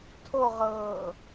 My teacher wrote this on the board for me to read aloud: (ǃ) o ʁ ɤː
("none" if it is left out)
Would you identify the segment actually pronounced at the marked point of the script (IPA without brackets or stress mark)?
tʰ